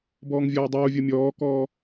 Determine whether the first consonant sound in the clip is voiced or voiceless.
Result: voiced